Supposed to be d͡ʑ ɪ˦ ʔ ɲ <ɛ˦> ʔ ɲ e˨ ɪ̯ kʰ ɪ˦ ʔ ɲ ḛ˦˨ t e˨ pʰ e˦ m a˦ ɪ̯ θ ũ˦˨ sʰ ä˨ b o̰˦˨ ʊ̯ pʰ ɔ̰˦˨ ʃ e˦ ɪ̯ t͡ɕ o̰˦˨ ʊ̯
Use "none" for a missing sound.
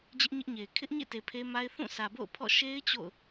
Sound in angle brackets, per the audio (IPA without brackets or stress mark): ɪ˦